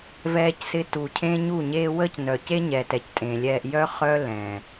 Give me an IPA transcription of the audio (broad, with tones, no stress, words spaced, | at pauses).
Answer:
vɛː˧csɪ˧ tu˨cʰẽ˦ɲu˦˨ɲeː˦ wəː˦cnœ˨ ce˦ɲɛ˨tɛ˨c tʼẽ˨lʲɛː˧ʔ jœ˦χœ˦ lɛ̃˨